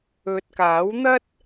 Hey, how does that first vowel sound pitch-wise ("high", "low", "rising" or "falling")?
low